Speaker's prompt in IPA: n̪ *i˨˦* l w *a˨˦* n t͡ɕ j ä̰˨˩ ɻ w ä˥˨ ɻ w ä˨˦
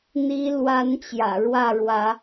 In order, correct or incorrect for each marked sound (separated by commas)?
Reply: correct, correct